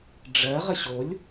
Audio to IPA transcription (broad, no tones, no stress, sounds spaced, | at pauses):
ɖ͡ʐ ɜ ʁ ə ɕ o lʲ